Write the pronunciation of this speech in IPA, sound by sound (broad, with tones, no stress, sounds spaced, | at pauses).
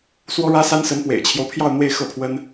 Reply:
s w ɔ˥ ɻ ä˥ s a˥ n s ə˧˥ n p w ḛ˨˩ ɪ̯ t͡ɕʰ j o˦ ʊ̯ pʰ j ɑ˥˧ ʊ̯ n̪ w e˥˧ ɪ̯ x ɤ˥˩ pʰ w ə˥ n